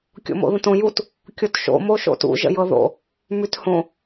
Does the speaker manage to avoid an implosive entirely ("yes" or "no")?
yes